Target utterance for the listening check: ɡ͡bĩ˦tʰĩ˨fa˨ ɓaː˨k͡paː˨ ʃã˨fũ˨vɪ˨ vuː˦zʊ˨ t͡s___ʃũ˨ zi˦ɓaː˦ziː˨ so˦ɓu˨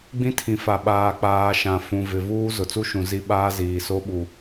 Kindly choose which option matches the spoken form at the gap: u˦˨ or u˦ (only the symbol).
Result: u˦